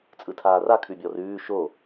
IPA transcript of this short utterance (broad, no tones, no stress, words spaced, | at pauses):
t͡sʼɯtʰaːra kʰʉbʲɔrʉː ʃo